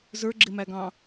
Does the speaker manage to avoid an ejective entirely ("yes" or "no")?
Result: yes